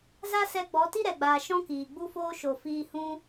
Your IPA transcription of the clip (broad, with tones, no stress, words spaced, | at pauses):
za˦sɛ˧ɡ͡bɔ˨˦ ti˦ɾɛ˨ɡ͡baː˨ ʃɔ̃˦kiː˨ ɡ͡bu˦foː˦ ʃo˨ fiː˧hũ˦